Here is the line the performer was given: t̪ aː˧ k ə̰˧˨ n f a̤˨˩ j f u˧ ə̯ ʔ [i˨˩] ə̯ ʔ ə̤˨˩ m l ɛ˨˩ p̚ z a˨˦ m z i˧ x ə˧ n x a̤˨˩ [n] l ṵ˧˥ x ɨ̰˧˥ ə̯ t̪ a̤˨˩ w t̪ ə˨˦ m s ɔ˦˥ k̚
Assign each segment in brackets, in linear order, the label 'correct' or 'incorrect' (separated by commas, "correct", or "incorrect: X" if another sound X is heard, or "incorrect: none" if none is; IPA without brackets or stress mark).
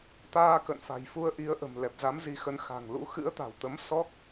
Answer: incorrect: i˨˦, incorrect: ŋ